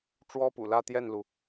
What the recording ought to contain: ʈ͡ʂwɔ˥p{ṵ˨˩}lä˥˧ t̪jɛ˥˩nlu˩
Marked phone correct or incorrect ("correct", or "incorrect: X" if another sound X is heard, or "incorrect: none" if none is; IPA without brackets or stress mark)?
correct